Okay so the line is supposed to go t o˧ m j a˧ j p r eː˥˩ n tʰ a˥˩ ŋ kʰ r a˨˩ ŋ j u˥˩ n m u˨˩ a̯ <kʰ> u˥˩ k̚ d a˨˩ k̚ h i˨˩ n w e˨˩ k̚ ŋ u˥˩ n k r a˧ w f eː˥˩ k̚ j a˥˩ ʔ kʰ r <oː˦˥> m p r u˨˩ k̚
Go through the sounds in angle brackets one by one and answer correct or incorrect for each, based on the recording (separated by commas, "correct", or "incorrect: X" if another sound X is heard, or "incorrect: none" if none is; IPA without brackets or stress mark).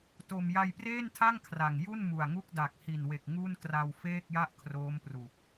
incorrect: ŋ, correct